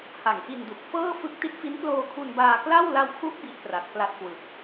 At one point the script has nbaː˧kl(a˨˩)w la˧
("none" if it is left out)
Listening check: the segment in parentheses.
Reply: a˥˩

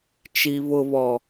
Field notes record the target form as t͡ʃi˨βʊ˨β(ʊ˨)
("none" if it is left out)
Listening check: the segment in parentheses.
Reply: ɔ˨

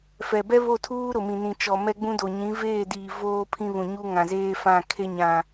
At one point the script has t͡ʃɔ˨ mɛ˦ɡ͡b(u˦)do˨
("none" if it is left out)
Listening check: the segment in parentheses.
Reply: ũ˦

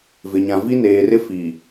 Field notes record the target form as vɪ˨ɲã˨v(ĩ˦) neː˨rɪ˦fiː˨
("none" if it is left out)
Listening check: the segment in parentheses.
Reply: i˦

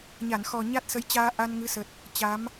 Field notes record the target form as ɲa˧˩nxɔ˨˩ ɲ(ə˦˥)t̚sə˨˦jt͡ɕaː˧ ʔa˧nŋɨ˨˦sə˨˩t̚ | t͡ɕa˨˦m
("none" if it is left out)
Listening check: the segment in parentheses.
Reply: a˦˥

